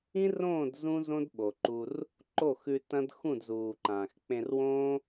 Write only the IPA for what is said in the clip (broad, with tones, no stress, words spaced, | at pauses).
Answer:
ĩ˦rõː˦˨d zũ˦ zõ˦dɓo˨ǃu˧r | ǃo˦˨ xʉ˧ tɐ̃˦d xũ˦˨dzuː˨ǃãː˨x k͡pẽ˧rwõː˦